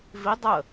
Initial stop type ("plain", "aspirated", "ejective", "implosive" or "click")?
plain